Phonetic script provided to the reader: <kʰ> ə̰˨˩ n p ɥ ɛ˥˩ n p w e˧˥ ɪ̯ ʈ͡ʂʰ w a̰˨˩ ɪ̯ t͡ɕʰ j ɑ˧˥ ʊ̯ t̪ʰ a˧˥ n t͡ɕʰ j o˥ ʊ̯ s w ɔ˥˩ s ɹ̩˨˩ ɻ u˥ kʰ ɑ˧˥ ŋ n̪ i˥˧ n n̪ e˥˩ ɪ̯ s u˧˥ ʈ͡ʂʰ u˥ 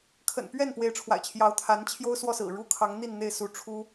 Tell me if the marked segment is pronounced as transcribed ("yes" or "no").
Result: yes